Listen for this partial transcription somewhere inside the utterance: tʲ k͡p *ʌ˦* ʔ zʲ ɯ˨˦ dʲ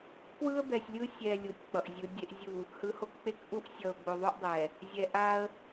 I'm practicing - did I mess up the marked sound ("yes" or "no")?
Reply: yes